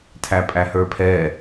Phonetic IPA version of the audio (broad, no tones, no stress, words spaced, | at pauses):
tʰæpʼæhə˞pʰɛ